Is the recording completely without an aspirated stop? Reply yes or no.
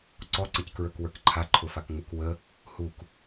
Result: no